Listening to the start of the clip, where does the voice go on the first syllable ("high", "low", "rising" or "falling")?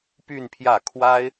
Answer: falling